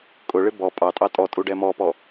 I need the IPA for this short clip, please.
kʼ ʊ ɭ ɪ b ɔ pʼ ɑ tʼ ɑ tʼ ɔ tʼ u ɖ ɛ m ɔ p ɔ

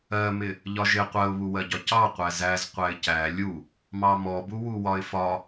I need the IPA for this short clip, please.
ɜ m ɪ | ʎ ɒ ʒ ɪ qʷ ɜ ʊ̯ β u w ɜ ɟ ɒ c ɑ qʷ æ z æ z qʷ æ ɪ̯ c æ lʲ u | m ɑ m ɔ b u w u w ɒ ɪ̯ f ɒ

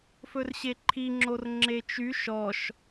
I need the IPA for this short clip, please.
f ɵ r ɕ e ǃʰ i ŋ͡ǁ o r ŋ͡ǁ e t͡ʃ y ʃ ɔ ʃ

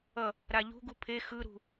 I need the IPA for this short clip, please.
ʌ | ɾ a ʎ ṳ ɡ u pʰ e x ɯ ɾ ṳ

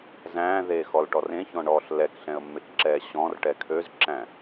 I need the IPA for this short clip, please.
z æ̃ː ð eː x ɔ l ʈ ɔ r ẽ ç ɔ̃ ɳ ɔː ɬ l ɛ k ɬ ɛ̃ ə̯ mː e k ǁ ɛː ɕ ɔ̃ r ʈ ɛ kʰ ø z ǁ æ̃

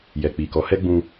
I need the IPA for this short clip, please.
j ɛ˨ k͡p i˨ k ɔ˨˦ h ɛ˦ ɡ͡b ũ˧

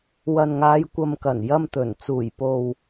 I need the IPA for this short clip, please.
w ɐ˨ n ŋ aː˨˧ j kʷ ɐ˨ m k ɐ˨˩ n j ɐ˧ m t̪ ɵ˨˩ n t͡s uː˨˩ j p o˨ w

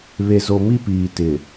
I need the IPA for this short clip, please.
β e˨ z o˨ m i˦ p iː˨ t ɪ˨

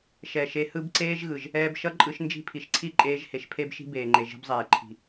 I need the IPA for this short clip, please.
ʃ ɛ˨ ʃ e˧ h ɯ˦ b ǀ eː˦ ʒ ɣ ɯ˨ ʒ | ɛː˧ b ʃ ʌ˦ ǃʼ ɯ˧ ʃ n d͡ʒ i̤˦˨ pʰ i˨ ʃ ǀʰ i˦ ǃʼ eː˧ ʒ h e˧ ʃ pʰ e˦ b ʃ i̤˦ b eː˨ ŋ͡ǃ e˨ ʒ e̤˧ b zˤ eː˨ ǃʰ i̤˨

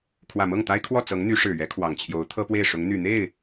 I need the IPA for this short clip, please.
kʰ w ä˨˩ m ɤ˥˩ ŋ t̪ a˥ ɪ̯ kʰ w ɔ˥˩ t͡s ɤ˧˥ ŋ n̪ y˧˥ ʂ ɻ̩˨˩ ɥ ɛ˧˥ kʰ w ɑ˨˩ ŋ t͡ɕʰ j o˧˥ ʊ̯ t̪ʰ ɤ˥ p w e˥˩ ɪ̯ ʂ ʊ˧˥ ŋ n̪ y˨˩ n̪ e˥˩ ɪ̯

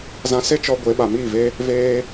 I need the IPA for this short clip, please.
z ã˧ s e˦ t͡ʃ ɔ˧ ɡʷ e˨˦ ɓ a˨ m iː˦˨ v e˦ | v eː˦

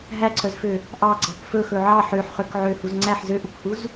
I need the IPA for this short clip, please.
ɦ æ ǀʰ œ z f ø | ʔ ɑ ɡ͡ǀ ɑ k f ɵ x ɵ ʕ ɑ ħ ø ħ χ ø k ʕ ø h u z ŋ͡ǀ æ ħ z ø ʔ u k h u z

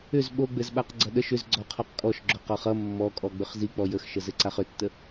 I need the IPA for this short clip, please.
ʏ z ɓ o ɡ͡b ɘ z ɓ a q ɡ͡ǀ ʌ ɗ ə ʃ ʏ z ɡ͡ǀ ɔ qʰ ɔ q kʼ ɔ ʃ ɡ͡ǁ o q ɔ χ ʌ mː ɔ kʼ ɔ ɡ͡b ʏ χ z i k͡p ɔ j ə x ʃ ə z ɘ ǀ a χ ʏ tː ə

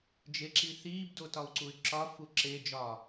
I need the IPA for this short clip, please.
d͡ʒ e ǁ i θ iː b d o t ɒ u̯ ǀ u y̯ ǁ ɒ f u ǁ e d͡ʒ ɒ

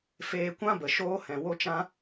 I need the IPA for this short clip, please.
f eː˧ kʷ ã˦ b ə˨ ʃ oː˧ h ɛ̃˨ w o˦ t͡ʃ ã˦

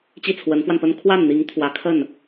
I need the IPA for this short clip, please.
t͡ɕ i˥˩ t͡sʰ w ə˧˥ n f w a˧ n p ə˥ n kʰ w a˥˩ n n̪ i˧˥ ŋ t̪ʰ w ä˧˥ kʰ ə˥˩ n

